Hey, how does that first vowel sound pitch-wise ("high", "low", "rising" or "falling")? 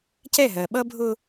falling